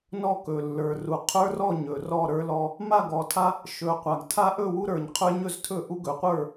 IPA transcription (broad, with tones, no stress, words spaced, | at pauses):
nɔ˥˨kɵ˨˩ lːə˞˨˩ru˨˩ qʰə˞˦rɔ˥˨ ɲɵ˨˩rɔ˥˨ ɾə˞˦lɔ˦ | ma˥˨ɡɔ˨˩tʰa˦ | ʃɵ˨˩ qʷa˨˩ɡtʰa˦ ʔɵ˥˨wu˦ɾə˞˨˩ɲ qʰə˞˦ɲɵ˥˨ztʰɵ˥˨ʔu˦ ɡɵ˨˩qʷə˞˥˨